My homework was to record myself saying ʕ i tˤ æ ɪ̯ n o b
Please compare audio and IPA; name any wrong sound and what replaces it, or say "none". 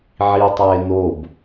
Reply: none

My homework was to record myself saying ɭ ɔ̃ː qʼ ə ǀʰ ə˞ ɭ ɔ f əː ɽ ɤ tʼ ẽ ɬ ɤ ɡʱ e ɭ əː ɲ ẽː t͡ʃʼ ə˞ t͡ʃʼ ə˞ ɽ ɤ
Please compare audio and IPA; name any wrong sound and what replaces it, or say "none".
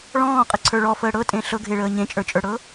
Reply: ẽː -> ẽ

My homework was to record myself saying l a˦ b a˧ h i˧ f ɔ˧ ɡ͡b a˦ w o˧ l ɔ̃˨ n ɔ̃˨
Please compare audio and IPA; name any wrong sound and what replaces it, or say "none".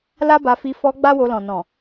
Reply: h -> f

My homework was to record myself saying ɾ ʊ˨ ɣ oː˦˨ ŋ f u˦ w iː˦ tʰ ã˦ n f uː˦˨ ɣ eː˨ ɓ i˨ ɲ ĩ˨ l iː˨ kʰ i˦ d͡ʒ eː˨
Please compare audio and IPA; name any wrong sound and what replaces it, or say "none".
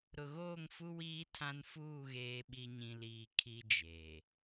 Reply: none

